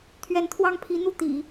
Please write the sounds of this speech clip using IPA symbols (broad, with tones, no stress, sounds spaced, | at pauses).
t̪ʰ ɥ ɛ˧˥ n t̪ʰ w ɑ˥˩ ŋ pʰ i˧˥ n̪ u˥˩ t̪ ḭ˨˩˦